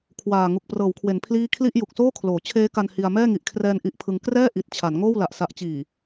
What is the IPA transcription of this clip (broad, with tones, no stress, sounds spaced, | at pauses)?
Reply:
kʰ w aː˨˩ ŋ u˨˩ k̚ p r ɤː˩˦ w kʰ w e˩˦ n pʰ l iː˥˩ kʰ l i˥˩ ʔ j u˨˩ k̚ s oː˥˩ kʰ l oː˩˦ t͡ɕʰ eː˦˥ k a˧ n h i˧ a̯ m ɛː˥˩ ŋ i˨˩ ʔ kʰ r ɛː˧ n ʔ i˦˥ ʔ pʰ ɯ˧ ŋ k r ɛː˥˩ ʔ i˨˩ t̚ t͡ɕʰ a˩˦ n ŋ oː˥˩ w l a˨˩ ʔ s a˨˩ ʔ t͡ɕ iː˨˩